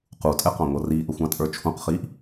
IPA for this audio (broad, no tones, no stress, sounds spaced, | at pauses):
q u tʼ ɛ q ɑ̃ ŋʷ ʌ r iː ʔ ə xʷ ɑ̃ tʼ ə˞ t͡ʃʰ ũ q χ iː ʔ